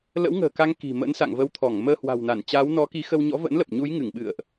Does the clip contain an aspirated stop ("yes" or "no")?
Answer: yes